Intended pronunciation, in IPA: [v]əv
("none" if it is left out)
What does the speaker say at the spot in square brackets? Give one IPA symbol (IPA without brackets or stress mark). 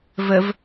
v